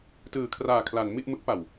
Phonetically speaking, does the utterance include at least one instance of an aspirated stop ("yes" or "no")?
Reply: yes